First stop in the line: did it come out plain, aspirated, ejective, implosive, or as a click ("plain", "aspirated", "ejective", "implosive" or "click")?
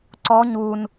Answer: click